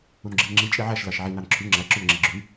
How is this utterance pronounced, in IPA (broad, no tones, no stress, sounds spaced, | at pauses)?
u n ɡ͡ǁ i n ŋ͡ǁ i t͡ʃʼ i ʕ æ ʃ l ɑ ʃ ʕ i n ɑ n ǁʰ y ŋ͡ǁ æ ǁ ø n ŋ͡ǁ i ɡ͡ǁ y